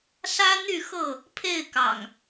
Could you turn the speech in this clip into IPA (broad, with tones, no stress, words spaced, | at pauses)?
sä˦n̪y˥˨xɤ˥˨ | pʰe˥˨ɪ̯kɑ̰˨˩ŋ